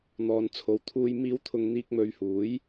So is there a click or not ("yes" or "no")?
no